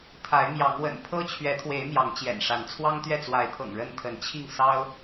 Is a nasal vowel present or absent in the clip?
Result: absent